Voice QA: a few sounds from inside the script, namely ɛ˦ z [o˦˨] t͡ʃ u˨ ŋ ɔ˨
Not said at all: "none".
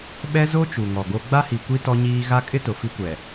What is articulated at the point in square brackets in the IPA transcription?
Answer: o˦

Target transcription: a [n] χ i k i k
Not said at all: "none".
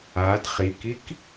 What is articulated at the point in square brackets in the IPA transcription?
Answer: d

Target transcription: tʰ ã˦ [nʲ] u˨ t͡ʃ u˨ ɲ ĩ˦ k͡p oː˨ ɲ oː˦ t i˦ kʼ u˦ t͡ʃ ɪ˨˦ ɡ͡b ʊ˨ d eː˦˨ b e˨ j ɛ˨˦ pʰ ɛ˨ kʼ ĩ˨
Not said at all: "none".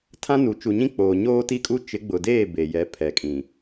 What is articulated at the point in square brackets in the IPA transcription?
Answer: n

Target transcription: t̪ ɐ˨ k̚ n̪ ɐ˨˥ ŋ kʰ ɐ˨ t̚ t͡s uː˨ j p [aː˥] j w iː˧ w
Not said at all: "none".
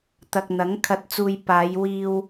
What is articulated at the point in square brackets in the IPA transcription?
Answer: aː˨˧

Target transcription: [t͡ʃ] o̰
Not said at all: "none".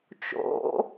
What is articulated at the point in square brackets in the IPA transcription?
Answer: t͡ʃ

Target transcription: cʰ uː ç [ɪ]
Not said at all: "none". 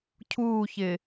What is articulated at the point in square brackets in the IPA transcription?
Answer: ɪ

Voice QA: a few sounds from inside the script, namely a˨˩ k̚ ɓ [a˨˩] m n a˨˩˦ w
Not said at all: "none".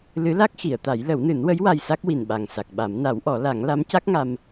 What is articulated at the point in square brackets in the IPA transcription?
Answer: a˨˩˦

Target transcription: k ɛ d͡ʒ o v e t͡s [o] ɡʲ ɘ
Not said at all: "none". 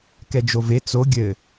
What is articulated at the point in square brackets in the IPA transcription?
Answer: o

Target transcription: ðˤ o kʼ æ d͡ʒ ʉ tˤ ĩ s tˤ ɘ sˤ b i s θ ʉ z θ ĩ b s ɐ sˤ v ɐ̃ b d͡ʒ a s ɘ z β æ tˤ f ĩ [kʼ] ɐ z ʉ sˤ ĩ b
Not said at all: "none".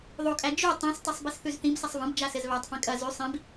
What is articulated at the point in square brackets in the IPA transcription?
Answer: kʼ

